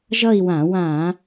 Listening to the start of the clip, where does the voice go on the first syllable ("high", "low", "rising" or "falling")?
falling